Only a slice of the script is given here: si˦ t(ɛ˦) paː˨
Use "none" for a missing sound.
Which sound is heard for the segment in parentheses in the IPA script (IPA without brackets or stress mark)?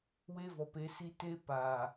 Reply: e˦